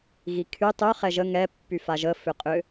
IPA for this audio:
ɣikʰy tˤʉ χɛʒə ŋɛ pːyfaʒə fʏqʼʏ

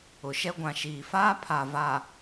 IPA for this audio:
ʊ˨ʃɛ˦ ɡʷã˨ʃiː˨faː˦ pʰa˨va˨

